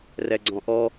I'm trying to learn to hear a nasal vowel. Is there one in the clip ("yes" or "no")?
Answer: yes